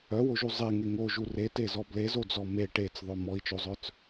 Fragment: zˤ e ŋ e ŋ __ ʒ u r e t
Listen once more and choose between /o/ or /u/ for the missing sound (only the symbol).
o